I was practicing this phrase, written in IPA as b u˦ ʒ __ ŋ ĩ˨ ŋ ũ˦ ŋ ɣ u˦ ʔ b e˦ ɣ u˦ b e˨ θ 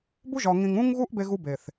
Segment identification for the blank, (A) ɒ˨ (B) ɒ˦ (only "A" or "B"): A